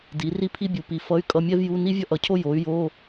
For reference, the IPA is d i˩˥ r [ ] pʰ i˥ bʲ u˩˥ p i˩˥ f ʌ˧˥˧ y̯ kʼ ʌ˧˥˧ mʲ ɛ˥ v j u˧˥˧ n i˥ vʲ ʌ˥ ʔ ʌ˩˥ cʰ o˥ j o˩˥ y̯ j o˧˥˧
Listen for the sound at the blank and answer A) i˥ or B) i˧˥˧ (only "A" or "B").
A